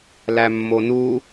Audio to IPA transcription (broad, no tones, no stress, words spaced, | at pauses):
læmːonu